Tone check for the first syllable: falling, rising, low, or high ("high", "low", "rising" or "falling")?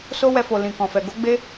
high